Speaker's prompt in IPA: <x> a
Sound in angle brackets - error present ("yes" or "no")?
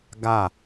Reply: yes